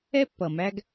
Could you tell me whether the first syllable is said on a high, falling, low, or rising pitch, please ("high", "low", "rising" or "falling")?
high